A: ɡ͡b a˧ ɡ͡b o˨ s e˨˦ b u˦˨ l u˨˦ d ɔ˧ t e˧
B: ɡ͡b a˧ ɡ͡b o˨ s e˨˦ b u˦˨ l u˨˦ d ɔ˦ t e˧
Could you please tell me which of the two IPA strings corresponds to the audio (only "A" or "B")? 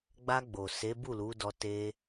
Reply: A